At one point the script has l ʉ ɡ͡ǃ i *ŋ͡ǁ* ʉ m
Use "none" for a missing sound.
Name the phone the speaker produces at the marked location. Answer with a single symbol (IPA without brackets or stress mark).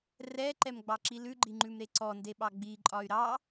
ŋ͡ǃ